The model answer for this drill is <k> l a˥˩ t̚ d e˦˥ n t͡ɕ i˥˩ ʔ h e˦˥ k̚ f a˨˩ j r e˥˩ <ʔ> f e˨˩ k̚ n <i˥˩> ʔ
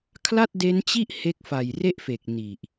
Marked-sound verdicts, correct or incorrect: incorrect: kʰ, correct, incorrect: i˨˩

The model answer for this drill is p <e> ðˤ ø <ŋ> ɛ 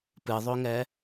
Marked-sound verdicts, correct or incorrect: incorrect: ɨ, correct

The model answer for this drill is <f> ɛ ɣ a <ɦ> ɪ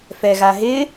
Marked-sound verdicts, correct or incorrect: correct, correct

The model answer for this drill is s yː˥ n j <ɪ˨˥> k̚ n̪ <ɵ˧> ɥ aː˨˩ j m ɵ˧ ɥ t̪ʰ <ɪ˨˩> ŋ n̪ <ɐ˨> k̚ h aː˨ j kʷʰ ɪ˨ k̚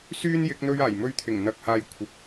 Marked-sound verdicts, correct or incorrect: correct, correct, correct, correct

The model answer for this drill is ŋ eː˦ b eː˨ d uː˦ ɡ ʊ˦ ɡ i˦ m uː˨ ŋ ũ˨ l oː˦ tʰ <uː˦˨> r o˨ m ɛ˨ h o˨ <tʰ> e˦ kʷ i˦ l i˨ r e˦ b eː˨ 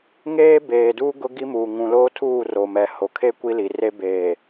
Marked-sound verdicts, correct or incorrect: correct, incorrect: kʰ

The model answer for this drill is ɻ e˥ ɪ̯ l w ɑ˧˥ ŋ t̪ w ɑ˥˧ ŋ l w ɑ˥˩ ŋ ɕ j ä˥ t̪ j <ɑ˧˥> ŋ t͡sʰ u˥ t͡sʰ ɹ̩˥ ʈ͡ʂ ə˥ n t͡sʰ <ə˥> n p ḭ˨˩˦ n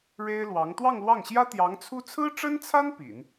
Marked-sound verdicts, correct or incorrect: correct, incorrect: a˥

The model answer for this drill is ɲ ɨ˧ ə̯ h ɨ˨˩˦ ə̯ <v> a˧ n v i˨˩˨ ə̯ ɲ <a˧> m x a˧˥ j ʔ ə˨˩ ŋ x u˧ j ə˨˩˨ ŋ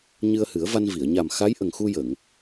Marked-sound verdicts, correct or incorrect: correct, incorrect: a˨˩

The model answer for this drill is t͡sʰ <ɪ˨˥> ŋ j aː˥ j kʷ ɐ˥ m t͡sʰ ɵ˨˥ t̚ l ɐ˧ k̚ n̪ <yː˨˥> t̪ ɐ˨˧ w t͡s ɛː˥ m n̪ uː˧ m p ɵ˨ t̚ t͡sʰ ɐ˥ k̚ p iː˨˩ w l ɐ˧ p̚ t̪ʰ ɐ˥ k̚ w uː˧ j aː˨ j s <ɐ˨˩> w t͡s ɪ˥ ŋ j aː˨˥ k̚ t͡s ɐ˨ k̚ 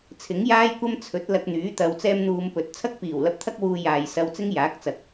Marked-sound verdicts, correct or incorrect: correct, correct, incorrect: ɐ˧

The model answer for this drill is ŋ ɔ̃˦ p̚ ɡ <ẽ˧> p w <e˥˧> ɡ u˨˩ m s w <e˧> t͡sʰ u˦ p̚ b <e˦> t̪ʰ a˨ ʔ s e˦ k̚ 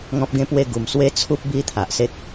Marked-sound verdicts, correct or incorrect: incorrect: ẽ˦, correct, incorrect: e˦, incorrect: i˦

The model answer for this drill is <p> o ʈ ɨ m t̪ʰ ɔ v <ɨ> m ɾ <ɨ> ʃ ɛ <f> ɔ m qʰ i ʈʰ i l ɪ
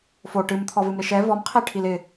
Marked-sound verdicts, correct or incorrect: incorrect: f, correct, incorrect: ɪ, incorrect: v

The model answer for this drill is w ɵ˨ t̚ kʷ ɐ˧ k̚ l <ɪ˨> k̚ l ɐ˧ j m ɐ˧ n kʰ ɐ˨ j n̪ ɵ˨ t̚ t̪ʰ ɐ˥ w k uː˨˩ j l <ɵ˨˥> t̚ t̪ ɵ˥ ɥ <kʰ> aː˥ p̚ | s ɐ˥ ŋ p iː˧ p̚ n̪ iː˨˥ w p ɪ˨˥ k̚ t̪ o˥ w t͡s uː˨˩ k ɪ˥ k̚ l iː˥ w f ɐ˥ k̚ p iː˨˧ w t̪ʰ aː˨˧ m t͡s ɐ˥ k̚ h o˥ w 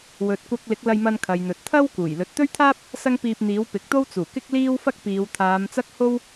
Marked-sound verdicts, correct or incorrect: incorrect: ɪ˨˥, incorrect: ɵ˨, incorrect: t̪ʰ

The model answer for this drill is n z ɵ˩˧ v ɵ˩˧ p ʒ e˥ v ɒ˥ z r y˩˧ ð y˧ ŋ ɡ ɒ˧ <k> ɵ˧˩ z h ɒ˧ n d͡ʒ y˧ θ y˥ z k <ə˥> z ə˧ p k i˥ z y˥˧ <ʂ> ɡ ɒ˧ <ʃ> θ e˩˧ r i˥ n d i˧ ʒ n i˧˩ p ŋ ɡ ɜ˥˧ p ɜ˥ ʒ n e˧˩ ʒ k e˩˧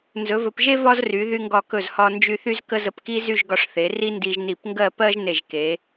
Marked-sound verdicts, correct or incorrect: correct, correct, incorrect: ʒ, incorrect: ʂ

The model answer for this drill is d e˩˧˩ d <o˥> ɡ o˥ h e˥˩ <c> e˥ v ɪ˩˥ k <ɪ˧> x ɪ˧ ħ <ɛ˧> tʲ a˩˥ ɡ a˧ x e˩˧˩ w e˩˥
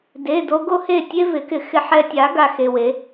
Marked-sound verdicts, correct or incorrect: incorrect: o˧, incorrect: tʲ, correct, correct

